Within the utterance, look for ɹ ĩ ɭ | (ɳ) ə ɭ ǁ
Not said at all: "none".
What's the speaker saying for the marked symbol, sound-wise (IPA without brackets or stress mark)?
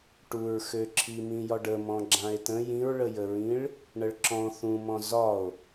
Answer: ɳ